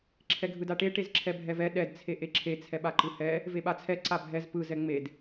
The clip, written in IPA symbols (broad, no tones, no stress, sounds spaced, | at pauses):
ǁʰ ɛ ɡʱ ɯ d a ʈ e ʈ e z ǁʰ ɛ bʱ ɛ v ɛ ɗ ɛ d t͡sʰ e ʔ e ǁʰ e t͡sʰ ɛ ɓ a ǃ ɯ h ɛ | v e ɓ a t͡sʰ ɛ ǀ a bʱ ɛ z p ɯ z ɛ ŋ͡m e d